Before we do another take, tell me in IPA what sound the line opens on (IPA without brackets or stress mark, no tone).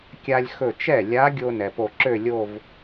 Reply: kʲ